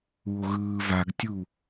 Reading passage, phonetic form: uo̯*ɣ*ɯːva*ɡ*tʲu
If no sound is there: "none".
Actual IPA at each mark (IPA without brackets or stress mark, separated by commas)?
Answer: ɣ, ɡ